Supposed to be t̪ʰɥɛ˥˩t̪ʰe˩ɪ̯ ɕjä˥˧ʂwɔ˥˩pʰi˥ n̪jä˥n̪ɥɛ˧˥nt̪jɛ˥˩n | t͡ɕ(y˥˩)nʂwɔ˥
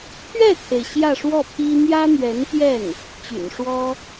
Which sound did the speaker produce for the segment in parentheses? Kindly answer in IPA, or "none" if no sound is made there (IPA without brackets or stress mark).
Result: y̰˨˩